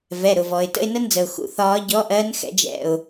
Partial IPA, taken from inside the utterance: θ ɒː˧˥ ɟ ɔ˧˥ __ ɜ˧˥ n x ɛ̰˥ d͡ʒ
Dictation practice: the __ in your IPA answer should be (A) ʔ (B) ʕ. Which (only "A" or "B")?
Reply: A